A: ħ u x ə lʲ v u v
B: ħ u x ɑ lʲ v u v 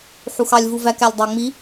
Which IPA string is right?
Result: B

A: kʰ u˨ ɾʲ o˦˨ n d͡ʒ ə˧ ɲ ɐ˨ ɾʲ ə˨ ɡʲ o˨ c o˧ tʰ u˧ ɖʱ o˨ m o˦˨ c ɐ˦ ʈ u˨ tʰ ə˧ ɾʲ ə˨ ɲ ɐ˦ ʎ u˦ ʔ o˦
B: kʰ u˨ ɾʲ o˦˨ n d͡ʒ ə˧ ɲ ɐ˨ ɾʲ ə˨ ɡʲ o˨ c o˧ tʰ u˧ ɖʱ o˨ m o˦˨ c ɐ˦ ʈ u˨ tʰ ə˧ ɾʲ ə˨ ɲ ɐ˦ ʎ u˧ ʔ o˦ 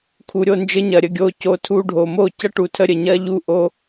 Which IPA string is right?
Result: A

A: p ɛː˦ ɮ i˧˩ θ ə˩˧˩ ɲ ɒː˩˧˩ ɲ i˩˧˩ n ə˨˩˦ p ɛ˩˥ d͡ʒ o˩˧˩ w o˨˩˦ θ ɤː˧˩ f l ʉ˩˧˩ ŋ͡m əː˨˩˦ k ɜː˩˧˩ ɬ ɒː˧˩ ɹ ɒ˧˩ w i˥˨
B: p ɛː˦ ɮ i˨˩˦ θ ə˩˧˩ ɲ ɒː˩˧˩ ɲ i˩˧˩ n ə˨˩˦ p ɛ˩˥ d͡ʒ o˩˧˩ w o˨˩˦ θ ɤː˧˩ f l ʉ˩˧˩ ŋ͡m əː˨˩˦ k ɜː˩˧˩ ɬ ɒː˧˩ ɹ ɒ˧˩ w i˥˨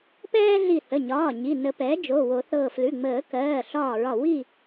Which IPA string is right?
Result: A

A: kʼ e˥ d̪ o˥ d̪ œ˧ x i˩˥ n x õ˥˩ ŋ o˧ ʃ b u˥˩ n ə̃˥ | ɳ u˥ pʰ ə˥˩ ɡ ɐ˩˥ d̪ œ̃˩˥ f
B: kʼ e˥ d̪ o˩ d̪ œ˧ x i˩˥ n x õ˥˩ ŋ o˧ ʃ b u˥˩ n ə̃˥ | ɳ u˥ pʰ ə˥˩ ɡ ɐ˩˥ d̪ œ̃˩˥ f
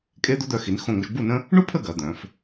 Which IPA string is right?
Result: A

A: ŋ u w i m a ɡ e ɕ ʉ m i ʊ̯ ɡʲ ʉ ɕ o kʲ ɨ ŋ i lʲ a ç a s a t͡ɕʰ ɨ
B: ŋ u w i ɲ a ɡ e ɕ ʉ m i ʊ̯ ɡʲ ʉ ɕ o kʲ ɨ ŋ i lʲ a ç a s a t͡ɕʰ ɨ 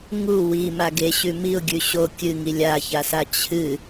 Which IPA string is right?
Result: A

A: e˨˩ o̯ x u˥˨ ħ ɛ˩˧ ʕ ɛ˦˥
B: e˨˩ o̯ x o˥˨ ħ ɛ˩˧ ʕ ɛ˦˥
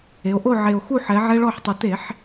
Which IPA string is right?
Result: A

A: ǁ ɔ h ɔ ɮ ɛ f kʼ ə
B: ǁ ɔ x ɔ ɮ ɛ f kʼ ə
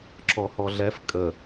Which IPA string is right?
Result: A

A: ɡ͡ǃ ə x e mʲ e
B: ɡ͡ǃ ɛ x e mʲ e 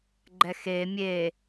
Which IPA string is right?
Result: B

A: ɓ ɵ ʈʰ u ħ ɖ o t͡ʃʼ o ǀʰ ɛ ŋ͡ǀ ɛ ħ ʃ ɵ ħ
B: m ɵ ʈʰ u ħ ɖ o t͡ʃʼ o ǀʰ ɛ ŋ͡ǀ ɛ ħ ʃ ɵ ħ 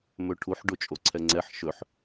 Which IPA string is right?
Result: B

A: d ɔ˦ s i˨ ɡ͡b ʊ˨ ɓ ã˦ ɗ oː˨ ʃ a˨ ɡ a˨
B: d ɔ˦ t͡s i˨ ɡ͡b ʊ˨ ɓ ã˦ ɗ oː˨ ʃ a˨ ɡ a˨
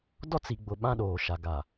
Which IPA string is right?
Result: B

